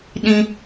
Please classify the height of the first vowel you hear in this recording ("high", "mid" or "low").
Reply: high